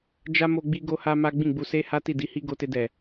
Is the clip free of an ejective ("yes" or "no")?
yes